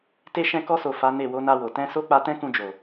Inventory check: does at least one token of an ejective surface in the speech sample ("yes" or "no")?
no